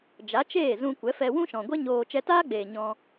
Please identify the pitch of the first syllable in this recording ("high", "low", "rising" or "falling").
rising